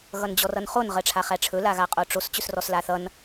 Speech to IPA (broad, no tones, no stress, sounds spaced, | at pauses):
ɣ ʌ n d͡ʑ ɔ r ʌ n χ o n ʁ ɜ ʈ͡ʂʰ a χ æ ʈ͡ʂʰ ɵ l a ɣ a qʼ o ʈ͡ʂ o s t͡ɕ ɵ s r ɔ s l a θ ʌ n